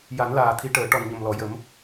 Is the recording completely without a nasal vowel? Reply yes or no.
yes